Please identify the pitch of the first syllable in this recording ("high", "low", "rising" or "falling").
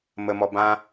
low